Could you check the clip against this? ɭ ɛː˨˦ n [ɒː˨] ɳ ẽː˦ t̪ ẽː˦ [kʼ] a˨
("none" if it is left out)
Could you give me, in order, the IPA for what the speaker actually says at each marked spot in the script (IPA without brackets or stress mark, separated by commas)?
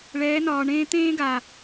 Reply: ɒː˨, ɡ